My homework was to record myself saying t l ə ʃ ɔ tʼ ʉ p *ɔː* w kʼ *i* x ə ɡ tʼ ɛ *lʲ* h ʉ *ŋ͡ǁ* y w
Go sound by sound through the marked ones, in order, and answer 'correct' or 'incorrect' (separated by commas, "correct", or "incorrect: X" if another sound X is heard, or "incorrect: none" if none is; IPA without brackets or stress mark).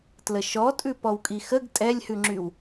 incorrect: ɔ, correct, correct, correct